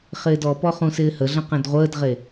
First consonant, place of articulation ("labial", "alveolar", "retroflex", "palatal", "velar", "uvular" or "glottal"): uvular